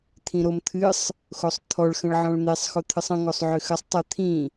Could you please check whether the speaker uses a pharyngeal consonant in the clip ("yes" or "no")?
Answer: yes